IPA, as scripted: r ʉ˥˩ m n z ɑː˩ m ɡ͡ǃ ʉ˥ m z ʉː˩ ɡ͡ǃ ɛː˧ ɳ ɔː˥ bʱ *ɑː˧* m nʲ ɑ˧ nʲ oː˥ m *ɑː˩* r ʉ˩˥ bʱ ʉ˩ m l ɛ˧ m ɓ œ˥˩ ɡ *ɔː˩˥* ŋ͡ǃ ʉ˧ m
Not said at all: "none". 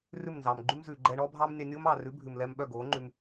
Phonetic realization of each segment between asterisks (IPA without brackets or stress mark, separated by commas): ɑː˥, ɑː˩, oː˩˥